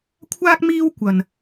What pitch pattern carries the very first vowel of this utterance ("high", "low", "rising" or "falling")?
high